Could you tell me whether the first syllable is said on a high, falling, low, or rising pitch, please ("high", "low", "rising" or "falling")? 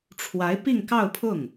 rising